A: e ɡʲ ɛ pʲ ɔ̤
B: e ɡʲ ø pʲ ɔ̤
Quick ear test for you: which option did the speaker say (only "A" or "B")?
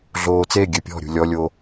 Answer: B